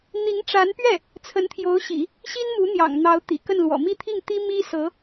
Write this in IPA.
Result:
n̪i˧˥ŋʈ͡ʂa˧˥npɥɛ˥˩ | t͡sʰə˧˥nt̪ʰjo˧˥ʊ̯ɕḭ˨˩˦ | ɕi˥nmu˧˥n̪jɑ̰˨˩ŋ n̪ɑ˧˥ʊ̯t̪ḭ˨˩kə˥˩nlwɔ̰˨˩ mi˥˧t̪ʰi˥˩ŋt̪i˥ mi˥sɤ˧˥

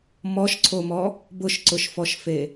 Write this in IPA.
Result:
mɔʃǀʰomɔ | bʊʃǀʊʃfɔʃfe

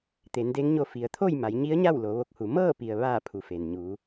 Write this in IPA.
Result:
t̪e˩˧nde˧˥ŋɲo˧ fi˩ə̯t̪ʰo˥˨j ma˩˧jɲi˧˥ə̯ɲa˥˨w lo˩˧ʋo˧k̚hu˩˧ mɤː˥˨pi˩ə̯ ʋaː˧˩ pʰu˩˧fe˩n ɲuː˩˧

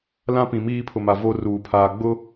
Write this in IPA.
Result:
lã˦pĩ˨ miː˦pʰʊ˨ma˨ vo˦ruː˨pʰaː˨ ɡ͡bʊ˦

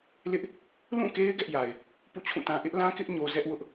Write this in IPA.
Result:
lɪ˦ʔ | lũ˦˨ke˦ɪ̯ ɡɛ˦ʔja˨ɪ̯ | pṵ˦˨t͡ɕʰũ˦˨tã˦ ʔɪ˦ʔlã˦kɪ˦ʔ ɲo˦ zɛ˦ʔ wʊ˦ʔ

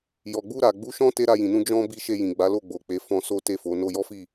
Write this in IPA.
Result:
jɔ˨ɡ͡bu˧ɾa˨ ɡ͡bu˨˦ ʃɔ̃˦ te˦ ɾa˧jĩ˨nũ˧ d͡ʒɔ̃˦ bi˧ʃe˧jĩ˨ɡ͡ba˨˦ lo˦˨ɡ͡bo˨k͡pe˨˦fɔ̃˧ so˦te˦˨fo˨˦ no˧jɔ˦fi˦˨

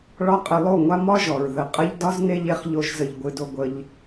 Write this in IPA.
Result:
ɭɒ˦qʼɘ˧lˠo˦˨ŋʷa˦ mɒ˦ʒɔ˨ɹ ðə˨qʼə˦ʎ dɒ˦z ne˦ʎe˧χʎo˧ʒzə˨ʎ ɡʷɨ˧do˧ɡʷə˧ʎ

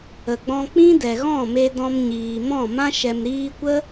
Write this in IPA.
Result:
ə˨ɡ͡bɔ̃˧ k͡pĩ˦dɛ˨ɣɔ̃˦˨ me˧dɔ̃˧mɲiː˨mɔ̃˦˨ mã˦ʃɛ˨m ɾiː˧kʷə˦

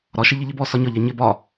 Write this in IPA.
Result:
ɾɒʃɪ ʎɪʎɪbɔ sɒɲɒʎæ ɲɪ bɒ

